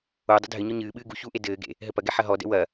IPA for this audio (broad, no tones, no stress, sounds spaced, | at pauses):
o dˤ ḭ dʱ ɘ ɲ ɔ ɲ ɨː ɓ ɨː ɡ u ç u ʔ e d ɘː ɡ ḛ | ɦ ɘ p ɐ ɡ ɛ ħ ɐ ɦ ɔ d ɛ̰ w ɐ